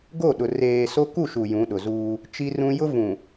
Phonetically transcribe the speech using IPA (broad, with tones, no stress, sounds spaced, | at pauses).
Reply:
ɡ o˦˨ ɗ ʊ˨ r eː˨ s o˦ k u˦˨ ʃ u˨ j ũ˨˦ ɗ ʊ˨ z uː˦ | t͡ʃ i˦ r ũ˦ j ʊ˦ v ũ˨